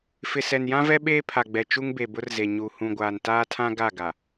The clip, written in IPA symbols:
fɪ˨sɛ˨njã˦vɛ˦ ɓeː˦pʰa˨ɡ͡bɛ˨ t͡ʃu˦ŋbe˨bʊ˦rze˨ ɲu˨ hũ˨ɡʷaː˨n taː˦tʰã˦ ɡa˦˨ɡa˨

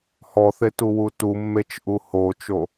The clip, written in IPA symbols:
hɔθet uwutumːet͡ʃ ʔuhot͡ʃo

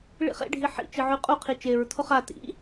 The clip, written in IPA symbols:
ɭḭχḛɖʱi ħḭt͡ʃɨ ʕʉqʼuqʰi t͡ʃeɹtʰo χa tḭ

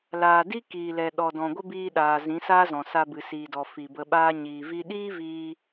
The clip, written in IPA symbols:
laː˨di˦ kiː˨lɛ˨ ɗɔ˨dɔ̃˨ɡʷə˦ biː˧ɗaː˨ zĩ˨˦saː˦zɔ̃˨sa˧ bɨ˨siː˨dɔ˨ fi˨bə˧ɓaː˦ ɲiː˨vi˦ ɗiː˦viː˧

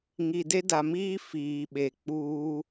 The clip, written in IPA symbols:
ŋi˨de˦da˨miː˦ fiː˨ ɓe˨k͡puː˦

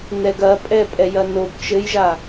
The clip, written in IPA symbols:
nɛɡɐpʼɛ pʼɛjɐnob t͡ʃɘjʒa

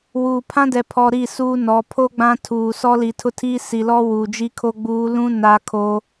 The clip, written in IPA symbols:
wuː˨ pʰã˦dɛ˨pʰɔ˨ ɾi˦˨suː˦nɔ˨˦ pʰo˦ ɡ͡bã˦tʰuː˨ sɔ˦li˨tʰʊ˦tʰiː˦ si˨lɔ˦ wuː˨d͡ʒi˦kʰo˦ ɡ͡buː˨˦lũ˦ na˦ kʰoː˦

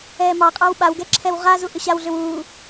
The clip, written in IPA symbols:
ɛːmɑqʼɑw ɓawɡɛ ǁʰɛwʁazu ʔʏɕawɮʏw uː

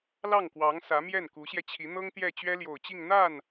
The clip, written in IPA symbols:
lɑ˥˩ŋkwɑ˧˥ŋ sä˧˥ mjɛ˥˩nku˧˥ɕjɛ˧t͡ɕʰi˧˥ n̪ɤ˥ŋt̪jɛ˥˩ t͡ɕɥɛ˥ljo˨˩ʊ̯t͡ɕi˥˧ŋ n̪a˥˩n

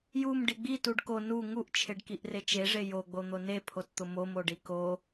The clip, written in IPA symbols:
jum ɖiɡ͡bi tuɖko nu ŋuʔt͡ʃʰeɖkiʔ ret͡ʃeʐe joɡ͡bo n̪onepʰott̪ʊ momoɖi ko

